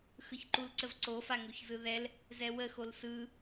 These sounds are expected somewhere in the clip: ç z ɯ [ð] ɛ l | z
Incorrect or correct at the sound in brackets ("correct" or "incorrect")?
correct